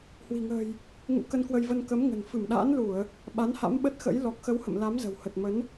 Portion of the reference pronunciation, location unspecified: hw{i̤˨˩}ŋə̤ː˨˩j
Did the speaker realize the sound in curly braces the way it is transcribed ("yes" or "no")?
yes